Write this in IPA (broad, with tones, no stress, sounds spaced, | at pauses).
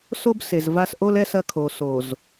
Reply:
s o˦ b s e˨ z v a˦ s ʔ o˦ l ɛ˦ s ɐ˦ kʰ o˨ s o˨ z